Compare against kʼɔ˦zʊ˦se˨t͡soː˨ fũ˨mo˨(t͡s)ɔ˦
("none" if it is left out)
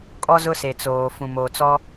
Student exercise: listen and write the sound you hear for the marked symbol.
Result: t͡s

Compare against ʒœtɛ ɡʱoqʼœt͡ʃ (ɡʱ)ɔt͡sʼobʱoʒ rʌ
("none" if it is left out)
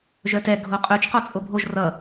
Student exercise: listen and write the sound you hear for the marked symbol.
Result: q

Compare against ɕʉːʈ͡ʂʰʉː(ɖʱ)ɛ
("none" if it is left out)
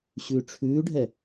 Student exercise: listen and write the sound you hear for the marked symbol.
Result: ɖʱ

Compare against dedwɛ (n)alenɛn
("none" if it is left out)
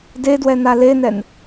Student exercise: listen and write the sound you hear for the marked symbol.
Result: n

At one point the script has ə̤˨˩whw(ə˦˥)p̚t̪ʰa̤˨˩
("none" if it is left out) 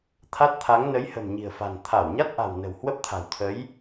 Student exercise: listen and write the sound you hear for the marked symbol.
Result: ə˦˥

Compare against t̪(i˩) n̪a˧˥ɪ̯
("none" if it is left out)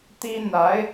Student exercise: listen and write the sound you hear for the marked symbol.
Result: i˥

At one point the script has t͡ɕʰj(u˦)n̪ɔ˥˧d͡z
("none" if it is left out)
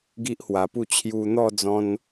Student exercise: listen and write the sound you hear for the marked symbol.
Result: u˧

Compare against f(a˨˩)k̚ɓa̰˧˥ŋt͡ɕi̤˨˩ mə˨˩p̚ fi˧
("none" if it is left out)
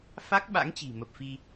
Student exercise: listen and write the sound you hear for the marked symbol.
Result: a˦˥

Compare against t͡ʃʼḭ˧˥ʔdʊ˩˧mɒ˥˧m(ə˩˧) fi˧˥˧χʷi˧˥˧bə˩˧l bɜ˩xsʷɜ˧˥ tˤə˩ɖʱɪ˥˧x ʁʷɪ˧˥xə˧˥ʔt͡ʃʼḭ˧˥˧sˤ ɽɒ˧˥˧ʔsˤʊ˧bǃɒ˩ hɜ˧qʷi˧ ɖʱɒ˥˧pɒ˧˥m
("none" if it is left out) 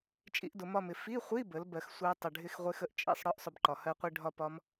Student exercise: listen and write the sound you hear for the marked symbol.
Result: ɪ˩˧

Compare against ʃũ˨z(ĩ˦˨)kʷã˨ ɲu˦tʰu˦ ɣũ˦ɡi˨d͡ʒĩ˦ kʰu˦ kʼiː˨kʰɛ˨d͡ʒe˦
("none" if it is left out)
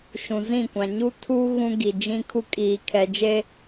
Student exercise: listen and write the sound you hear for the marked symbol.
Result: ĩ˦˨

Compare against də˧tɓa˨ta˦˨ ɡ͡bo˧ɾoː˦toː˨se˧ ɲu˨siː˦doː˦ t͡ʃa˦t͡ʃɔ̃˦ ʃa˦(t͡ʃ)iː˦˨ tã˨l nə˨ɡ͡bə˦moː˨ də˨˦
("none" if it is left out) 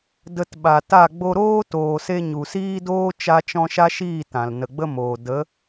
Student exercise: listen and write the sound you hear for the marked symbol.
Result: ʃ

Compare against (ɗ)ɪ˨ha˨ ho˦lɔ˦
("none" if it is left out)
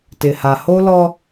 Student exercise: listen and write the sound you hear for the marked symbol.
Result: t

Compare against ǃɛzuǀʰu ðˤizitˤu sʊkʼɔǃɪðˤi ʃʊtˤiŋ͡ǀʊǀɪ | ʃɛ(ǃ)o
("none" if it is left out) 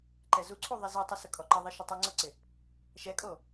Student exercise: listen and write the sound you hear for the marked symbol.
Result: kʼ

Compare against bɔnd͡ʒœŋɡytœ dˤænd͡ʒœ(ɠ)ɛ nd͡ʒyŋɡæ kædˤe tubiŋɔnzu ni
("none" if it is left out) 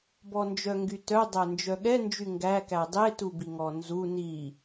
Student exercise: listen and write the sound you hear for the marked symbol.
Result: ɠ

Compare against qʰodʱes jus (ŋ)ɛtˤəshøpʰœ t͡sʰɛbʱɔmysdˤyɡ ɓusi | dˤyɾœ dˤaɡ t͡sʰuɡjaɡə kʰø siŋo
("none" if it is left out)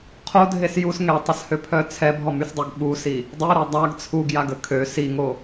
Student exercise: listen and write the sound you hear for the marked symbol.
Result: ŋ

